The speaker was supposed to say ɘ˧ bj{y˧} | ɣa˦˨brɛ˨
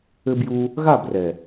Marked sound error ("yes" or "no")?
yes